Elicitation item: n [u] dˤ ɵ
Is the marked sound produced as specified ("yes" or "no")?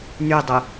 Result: no